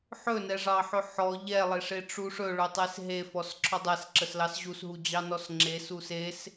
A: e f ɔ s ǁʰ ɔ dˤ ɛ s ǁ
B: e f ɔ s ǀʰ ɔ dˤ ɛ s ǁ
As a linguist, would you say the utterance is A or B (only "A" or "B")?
A